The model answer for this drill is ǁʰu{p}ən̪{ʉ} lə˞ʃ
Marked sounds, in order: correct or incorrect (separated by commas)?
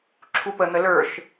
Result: correct, incorrect